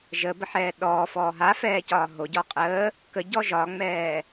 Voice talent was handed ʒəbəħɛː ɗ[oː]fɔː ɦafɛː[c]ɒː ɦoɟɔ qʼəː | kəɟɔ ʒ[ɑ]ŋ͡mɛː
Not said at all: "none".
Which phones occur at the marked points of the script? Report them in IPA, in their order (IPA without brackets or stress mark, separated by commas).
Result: ɔː, c, ɒ